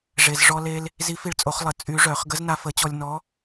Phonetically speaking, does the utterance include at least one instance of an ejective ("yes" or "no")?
yes